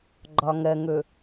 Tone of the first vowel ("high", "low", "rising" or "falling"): low